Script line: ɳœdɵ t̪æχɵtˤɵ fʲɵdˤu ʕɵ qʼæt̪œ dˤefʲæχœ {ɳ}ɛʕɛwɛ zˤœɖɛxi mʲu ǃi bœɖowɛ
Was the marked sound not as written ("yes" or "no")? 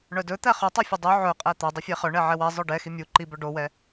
no